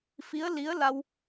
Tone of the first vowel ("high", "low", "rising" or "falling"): rising